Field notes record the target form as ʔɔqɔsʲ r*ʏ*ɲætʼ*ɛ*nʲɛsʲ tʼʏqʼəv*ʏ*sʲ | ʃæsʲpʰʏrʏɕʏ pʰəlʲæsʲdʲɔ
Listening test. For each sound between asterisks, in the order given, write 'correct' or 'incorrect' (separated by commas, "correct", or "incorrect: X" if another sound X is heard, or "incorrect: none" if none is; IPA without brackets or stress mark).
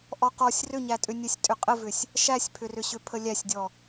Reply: correct, incorrect: ʏ, correct